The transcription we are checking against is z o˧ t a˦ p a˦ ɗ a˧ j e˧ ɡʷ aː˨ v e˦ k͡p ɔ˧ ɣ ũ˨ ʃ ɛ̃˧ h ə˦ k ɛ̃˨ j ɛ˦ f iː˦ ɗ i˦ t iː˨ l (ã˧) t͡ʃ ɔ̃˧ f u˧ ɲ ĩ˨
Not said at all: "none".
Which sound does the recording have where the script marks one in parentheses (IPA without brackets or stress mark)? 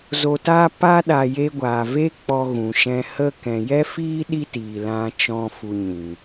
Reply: ã˧